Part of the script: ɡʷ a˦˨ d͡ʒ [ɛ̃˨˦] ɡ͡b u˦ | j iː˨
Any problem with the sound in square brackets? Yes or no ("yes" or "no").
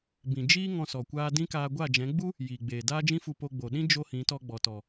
no